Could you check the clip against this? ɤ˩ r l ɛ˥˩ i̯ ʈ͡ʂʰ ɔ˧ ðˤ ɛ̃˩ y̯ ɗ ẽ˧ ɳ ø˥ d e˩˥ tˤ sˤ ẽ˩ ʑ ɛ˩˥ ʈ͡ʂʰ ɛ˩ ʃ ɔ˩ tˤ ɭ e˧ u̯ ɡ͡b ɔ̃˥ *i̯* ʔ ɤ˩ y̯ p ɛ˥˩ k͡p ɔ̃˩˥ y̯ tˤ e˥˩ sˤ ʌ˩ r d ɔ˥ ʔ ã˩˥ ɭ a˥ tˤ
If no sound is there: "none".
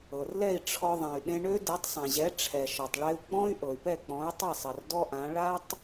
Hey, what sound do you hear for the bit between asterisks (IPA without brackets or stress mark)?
y̯